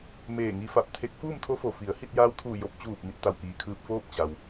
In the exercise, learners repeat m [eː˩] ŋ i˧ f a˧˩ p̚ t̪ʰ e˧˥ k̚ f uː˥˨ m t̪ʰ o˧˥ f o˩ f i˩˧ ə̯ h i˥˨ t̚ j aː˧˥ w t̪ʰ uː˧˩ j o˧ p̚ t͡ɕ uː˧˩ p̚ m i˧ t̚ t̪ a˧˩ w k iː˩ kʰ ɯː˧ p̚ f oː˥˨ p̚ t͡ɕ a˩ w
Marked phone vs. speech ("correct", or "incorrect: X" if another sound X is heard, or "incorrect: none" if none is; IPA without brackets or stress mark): incorrect: eː˧˩